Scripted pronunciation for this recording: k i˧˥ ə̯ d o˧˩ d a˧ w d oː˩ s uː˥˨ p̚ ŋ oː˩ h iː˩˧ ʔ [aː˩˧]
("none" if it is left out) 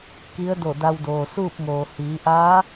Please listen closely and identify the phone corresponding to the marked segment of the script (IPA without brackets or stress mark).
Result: aː˧˥